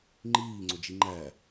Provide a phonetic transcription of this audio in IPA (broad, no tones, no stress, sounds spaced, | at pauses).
ŋ͡ǃ iː ŋ͡ǀ o d͡ʒ i ŋ͡ǃ æ